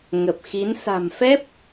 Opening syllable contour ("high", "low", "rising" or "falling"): low